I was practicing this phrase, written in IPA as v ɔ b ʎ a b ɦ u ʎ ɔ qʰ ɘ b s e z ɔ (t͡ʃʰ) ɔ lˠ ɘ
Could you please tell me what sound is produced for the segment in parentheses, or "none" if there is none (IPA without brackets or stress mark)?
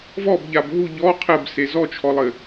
t͡ʃʰ